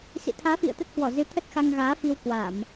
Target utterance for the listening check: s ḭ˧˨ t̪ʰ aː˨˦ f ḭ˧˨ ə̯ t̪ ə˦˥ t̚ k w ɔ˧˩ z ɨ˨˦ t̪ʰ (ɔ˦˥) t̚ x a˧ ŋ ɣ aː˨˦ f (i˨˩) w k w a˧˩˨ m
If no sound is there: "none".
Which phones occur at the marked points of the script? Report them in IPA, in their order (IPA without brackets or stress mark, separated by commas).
ə˦˥, i˧